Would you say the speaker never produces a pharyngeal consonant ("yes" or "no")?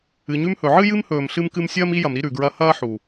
no